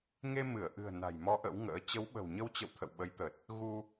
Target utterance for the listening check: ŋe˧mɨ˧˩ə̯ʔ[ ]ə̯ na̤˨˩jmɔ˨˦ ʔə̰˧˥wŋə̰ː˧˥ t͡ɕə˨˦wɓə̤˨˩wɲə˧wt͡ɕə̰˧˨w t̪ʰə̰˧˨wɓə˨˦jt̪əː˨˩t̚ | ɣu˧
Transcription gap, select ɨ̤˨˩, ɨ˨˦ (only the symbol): ɨ̤˨˩